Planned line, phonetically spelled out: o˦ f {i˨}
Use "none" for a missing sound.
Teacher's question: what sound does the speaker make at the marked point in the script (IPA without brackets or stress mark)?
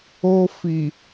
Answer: i˨